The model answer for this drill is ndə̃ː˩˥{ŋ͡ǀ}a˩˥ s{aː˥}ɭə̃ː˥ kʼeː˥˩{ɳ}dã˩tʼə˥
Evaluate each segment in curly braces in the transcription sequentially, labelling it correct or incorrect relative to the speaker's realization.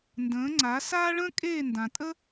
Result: correct, correct, incorrect

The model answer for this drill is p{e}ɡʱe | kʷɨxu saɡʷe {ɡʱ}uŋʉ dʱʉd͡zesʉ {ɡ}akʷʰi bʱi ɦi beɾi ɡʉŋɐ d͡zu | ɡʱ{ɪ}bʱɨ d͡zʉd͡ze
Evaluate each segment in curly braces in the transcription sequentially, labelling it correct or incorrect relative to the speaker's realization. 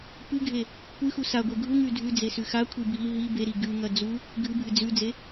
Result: incorrect, correct, incorrect, incorrect

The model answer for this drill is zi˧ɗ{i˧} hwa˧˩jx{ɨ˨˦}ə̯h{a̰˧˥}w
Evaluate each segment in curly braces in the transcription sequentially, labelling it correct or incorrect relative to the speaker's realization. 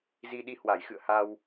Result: correct, incorrect, incorrect

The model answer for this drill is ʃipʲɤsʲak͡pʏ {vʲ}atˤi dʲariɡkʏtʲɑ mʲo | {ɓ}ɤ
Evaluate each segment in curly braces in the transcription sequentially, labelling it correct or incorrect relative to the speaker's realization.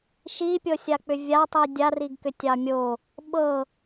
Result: correct, correct

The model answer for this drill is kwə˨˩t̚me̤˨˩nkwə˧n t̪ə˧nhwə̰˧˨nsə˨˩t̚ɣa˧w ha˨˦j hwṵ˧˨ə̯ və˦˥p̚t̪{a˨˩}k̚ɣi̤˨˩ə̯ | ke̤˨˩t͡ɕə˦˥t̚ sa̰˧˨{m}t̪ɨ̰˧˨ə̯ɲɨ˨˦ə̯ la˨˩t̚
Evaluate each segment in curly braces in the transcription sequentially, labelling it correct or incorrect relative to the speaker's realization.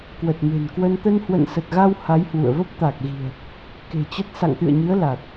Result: correct, incorrect

